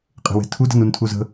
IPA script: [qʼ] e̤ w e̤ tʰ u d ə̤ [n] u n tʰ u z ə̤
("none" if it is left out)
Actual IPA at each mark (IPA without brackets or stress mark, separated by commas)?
qʼ, n